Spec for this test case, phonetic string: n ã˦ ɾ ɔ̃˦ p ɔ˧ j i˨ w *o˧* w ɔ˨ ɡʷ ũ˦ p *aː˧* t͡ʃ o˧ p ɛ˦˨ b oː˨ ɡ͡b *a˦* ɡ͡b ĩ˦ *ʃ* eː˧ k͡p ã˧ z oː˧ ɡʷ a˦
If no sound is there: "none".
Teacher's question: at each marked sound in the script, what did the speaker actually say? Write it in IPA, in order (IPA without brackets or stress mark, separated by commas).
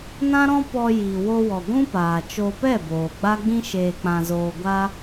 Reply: o˧, aː˨, a˦, ʃ